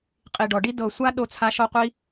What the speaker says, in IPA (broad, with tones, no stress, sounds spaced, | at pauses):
qʼ i˧ ɖ ɔ˧ ɖ i˦ d ɤ˧ sʷ a˦ ɗ o˦ t͡sʰ a˦ ʃ ɔ˦ qʷ i˦